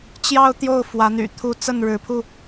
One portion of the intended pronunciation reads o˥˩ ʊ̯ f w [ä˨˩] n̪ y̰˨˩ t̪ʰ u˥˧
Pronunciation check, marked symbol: incorrect: ä˧˥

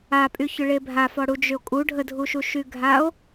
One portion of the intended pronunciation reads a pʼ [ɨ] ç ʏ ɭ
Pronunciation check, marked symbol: incorrect: y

